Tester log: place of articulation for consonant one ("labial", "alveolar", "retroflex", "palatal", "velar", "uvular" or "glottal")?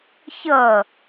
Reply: palatal